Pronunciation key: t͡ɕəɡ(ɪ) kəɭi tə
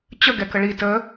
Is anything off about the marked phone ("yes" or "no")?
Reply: yes